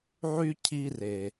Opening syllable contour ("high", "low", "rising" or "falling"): high